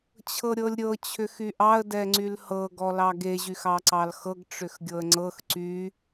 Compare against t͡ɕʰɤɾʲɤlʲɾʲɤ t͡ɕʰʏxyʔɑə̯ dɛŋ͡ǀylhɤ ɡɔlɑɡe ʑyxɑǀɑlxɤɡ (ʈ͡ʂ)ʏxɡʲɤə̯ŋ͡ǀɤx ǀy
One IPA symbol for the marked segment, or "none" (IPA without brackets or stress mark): ʈ͡ʂ